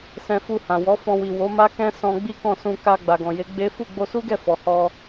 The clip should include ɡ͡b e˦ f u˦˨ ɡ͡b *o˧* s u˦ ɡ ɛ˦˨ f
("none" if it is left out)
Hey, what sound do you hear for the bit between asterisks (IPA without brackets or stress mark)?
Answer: o˧